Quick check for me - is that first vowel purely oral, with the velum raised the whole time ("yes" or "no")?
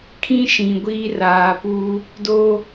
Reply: no